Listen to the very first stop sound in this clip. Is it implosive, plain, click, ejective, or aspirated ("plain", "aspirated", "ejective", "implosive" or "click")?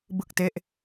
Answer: plain